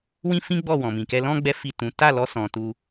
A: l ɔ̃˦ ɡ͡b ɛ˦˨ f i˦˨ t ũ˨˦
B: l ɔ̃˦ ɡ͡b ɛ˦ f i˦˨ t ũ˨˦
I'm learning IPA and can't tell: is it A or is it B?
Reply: B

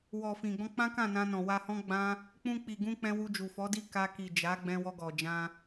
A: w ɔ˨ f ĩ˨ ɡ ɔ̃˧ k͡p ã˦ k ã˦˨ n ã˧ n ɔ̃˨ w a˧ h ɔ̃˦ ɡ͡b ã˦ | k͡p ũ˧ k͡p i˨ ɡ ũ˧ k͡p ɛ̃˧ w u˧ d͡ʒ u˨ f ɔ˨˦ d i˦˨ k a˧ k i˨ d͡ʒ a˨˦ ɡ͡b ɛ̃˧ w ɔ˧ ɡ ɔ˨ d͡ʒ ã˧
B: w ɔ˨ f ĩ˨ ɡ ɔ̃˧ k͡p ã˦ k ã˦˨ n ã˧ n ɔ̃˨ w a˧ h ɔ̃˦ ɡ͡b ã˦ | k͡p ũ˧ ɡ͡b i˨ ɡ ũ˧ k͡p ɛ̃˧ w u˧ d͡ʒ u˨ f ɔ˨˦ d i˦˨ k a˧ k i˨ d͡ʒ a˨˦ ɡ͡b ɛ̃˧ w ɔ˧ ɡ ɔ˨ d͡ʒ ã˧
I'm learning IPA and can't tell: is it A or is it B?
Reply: A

